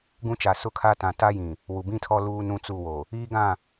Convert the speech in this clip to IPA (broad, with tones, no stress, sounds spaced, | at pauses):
ɡ ũ˦ t͡ʃ a˨ s ʊ˦ kʰ a˦ t ã˨ t a˦ j ĩ˨ | w u˨ b ĩ˦ tʰ ɔ˦ l uː˦ n ũ˦ t͡s u˦˨ w o˨ | iː˦ ɡ ã˦˨